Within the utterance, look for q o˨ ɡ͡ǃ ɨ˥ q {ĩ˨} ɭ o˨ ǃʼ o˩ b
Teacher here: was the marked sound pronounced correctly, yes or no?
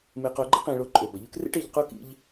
yes